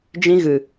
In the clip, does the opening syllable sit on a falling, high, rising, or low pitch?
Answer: high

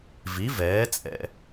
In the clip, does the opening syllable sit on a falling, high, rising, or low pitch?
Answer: rising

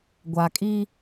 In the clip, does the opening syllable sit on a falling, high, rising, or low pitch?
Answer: low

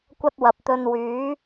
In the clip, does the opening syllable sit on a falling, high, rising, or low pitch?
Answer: high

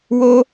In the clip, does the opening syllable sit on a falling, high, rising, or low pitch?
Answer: high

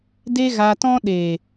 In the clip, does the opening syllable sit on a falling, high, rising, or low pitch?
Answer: high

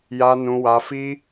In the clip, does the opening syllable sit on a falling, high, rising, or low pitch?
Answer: high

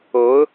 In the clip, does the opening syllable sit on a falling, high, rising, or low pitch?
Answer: rising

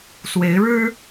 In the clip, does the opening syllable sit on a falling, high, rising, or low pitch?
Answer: rising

